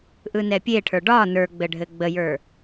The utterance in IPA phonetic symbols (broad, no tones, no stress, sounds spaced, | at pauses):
ʔ ɯ n ɛ pʲ e ʈʰ ə˞ ɖ ɒ n ə˞ ɡ͡b ɘ ɖʱ ɘ ɡ͡b ə j ə˞